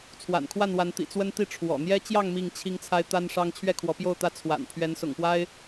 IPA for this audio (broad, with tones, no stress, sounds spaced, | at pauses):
t͡sʰ w a̰˨˩ n kʰ w a˥˨ n w a˨˦ n t̪ ḭ˨˩ t͡s w ə˦ n t̪ i˥˨ ʈ͡ʂʰ w ɔ̰˨˩ n̪ j ɛ˦ t͡ɕ j ɑ˥˨ ŋ m i˥˨ ŋ t͡ɕʰ i˦ ŋ t͡sʰ a˦ ɪ̯ t̪ a˦ n ʂ ɑ˦ ŋ t͡ɕʰ ɥ ɛ˥˨ kʰ w ɔ˨˦ p j o˥˨ ʊ̯ t̪ ä˦ t͡sʰ w a̰˨˩ n pʰ ɥ ɛ˨˦ n s ʊ̰˨˩ ŋ p w a˦ ɪ̯